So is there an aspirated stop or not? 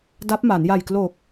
no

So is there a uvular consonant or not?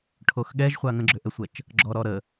yes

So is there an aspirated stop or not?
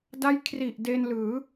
yes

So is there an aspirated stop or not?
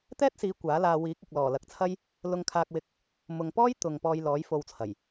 yes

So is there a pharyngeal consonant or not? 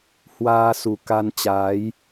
no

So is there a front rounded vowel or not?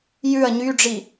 yes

